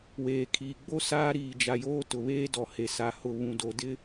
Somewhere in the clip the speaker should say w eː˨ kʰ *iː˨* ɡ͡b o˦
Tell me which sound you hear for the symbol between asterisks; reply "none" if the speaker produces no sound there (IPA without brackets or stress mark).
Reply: iː˨